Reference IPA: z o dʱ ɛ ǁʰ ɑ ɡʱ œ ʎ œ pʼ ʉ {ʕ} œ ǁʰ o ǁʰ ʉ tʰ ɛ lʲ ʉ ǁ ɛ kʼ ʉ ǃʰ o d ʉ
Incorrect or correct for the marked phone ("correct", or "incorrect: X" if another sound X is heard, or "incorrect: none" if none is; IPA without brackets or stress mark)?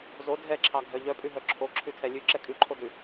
incorrect: ɦ